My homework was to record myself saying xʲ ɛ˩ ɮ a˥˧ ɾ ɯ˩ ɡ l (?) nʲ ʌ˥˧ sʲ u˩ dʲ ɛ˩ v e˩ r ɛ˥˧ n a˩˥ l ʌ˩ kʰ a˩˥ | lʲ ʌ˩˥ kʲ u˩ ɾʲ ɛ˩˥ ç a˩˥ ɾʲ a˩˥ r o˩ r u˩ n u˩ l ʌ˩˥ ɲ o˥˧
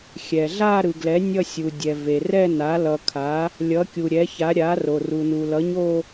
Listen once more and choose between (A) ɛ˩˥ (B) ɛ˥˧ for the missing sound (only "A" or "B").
A